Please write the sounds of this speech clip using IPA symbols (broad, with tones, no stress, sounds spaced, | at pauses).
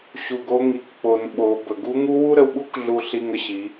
ɕ u˩ ɡ o˧ ŋ i˩˧ k k͡p o˩ n ɓ o˩˧ b ə˩ ɡ u˧˥ ŋ u˧˥ w u˥ ɾ ə˧ w ɓ u˥ k ɮ u˧ ɬ i˧ ŋ ə˧ ɕ i˩˧